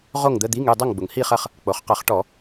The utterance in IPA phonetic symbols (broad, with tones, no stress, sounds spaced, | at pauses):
ʁ o˥˨ ŋ d̪ ə˧˥˧ d̪ i˧˥˧ ŋ y˥˨ dˤ ɐ˥˨ ŋ ɡ͡b ʊ˩ ŋ h i˥˨ χ ɐ˥˨ χ | k͡p o˩ χ q ɐ˧˩˧ χ ʈ ɔ˧˩˧